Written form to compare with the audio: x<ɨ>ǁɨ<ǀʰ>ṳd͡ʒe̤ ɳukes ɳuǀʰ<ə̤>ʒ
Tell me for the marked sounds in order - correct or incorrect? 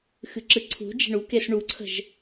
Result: correct, correct, correct

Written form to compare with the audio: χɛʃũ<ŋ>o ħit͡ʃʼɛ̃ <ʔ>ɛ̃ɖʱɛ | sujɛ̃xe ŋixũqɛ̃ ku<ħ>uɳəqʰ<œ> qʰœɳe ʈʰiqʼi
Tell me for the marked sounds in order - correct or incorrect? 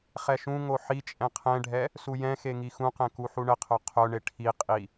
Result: correct, incorrect, correct, correct

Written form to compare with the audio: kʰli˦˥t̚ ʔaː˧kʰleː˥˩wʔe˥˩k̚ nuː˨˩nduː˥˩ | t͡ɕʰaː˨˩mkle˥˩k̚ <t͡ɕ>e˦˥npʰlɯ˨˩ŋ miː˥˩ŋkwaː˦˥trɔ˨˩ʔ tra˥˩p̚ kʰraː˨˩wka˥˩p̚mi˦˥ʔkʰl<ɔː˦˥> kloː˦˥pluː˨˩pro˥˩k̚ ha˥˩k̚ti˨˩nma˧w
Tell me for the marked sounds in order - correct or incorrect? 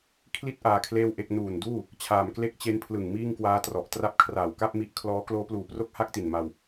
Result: correct, correct

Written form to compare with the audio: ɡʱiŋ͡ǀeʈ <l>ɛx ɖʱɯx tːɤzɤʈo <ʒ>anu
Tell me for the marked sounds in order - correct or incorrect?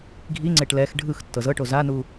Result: correct, incorrect

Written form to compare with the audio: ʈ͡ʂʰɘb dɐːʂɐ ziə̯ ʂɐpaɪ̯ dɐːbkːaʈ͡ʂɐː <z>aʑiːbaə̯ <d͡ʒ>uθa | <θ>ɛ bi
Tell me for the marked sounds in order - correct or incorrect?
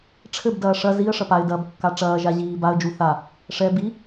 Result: incorrect, correct, incorrect

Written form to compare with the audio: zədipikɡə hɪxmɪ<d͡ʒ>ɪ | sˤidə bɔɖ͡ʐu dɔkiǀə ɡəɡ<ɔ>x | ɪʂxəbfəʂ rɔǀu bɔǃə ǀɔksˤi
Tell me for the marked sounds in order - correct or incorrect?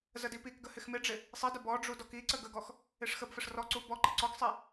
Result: incorrect, correct

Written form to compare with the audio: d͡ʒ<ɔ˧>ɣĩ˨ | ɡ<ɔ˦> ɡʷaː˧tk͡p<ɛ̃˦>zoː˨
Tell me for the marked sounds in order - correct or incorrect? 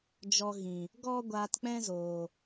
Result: correct, correct, correct

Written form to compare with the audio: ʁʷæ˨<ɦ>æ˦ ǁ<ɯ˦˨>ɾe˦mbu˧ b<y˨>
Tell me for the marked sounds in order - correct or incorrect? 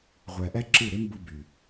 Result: incorrect, correct, correct

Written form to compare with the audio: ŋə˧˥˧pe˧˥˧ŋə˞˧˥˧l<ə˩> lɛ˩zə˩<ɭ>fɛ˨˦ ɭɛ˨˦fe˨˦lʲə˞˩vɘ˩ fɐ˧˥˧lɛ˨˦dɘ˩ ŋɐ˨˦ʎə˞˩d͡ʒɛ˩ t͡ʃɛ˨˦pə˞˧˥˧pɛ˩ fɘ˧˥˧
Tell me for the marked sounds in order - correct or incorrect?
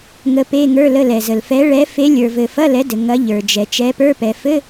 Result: incorrect, incorrect

